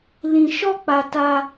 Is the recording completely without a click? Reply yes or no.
yes